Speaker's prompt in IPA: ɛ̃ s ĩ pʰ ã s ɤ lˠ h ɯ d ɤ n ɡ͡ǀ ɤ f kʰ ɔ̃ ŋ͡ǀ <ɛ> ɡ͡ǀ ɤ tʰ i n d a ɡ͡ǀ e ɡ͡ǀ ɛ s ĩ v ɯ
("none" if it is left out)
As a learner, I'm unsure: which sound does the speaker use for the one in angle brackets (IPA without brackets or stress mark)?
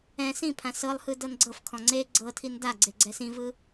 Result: e